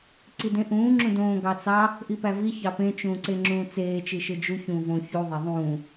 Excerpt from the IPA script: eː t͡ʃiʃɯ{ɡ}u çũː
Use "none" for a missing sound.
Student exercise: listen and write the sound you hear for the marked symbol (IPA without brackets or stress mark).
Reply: d͡ʒ